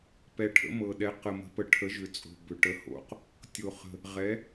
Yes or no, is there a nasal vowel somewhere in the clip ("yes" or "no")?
no